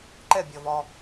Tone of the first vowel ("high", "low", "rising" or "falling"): falling